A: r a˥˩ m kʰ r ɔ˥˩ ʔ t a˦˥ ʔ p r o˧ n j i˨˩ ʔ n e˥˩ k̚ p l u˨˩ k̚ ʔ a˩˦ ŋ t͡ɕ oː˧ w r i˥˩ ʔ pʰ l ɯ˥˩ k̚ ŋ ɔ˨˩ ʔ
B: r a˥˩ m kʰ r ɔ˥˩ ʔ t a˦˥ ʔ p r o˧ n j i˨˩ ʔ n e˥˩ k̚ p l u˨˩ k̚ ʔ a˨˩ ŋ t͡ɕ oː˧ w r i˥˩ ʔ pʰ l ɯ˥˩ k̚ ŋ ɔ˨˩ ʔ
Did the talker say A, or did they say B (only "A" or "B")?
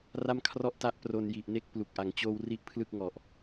A